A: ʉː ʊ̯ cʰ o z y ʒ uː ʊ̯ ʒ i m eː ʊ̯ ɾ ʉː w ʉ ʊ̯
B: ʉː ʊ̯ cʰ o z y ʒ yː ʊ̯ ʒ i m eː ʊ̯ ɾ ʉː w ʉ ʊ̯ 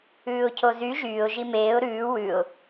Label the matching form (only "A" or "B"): B